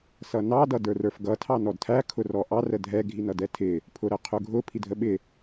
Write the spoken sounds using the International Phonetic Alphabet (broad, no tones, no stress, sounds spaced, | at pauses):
s ʌ n ɑ d ʌ d ə˞ r ə˞ f ɡ ʌ tʰ ɑ n ɔ d tʰ æ kʰ ʊ r ɔ ʔ ɑ r ə dʱ ɛ ɡʱ i n ʌ d ɛ tʰ ɪ | pʰ ʊ ɾ ə qʰ ʊ ɡʱ ʊ pʰ i dʱ ə ɓ ɪ